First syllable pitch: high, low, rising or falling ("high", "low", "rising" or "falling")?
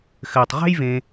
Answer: low